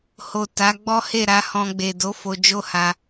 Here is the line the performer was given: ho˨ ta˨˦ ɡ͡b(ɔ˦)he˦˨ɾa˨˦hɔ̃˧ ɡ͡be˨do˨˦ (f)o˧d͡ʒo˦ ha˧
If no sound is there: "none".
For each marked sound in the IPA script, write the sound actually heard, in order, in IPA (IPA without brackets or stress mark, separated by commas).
ɔ˦, f